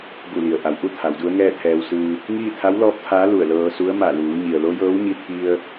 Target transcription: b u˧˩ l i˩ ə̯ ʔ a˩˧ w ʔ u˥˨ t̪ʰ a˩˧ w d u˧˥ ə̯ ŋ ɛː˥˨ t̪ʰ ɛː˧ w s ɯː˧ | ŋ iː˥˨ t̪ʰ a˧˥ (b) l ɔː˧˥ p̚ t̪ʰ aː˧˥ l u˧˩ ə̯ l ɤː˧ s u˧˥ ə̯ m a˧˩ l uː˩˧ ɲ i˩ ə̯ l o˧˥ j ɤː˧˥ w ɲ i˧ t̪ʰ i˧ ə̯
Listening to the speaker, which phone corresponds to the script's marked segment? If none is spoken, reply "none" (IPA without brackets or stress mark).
w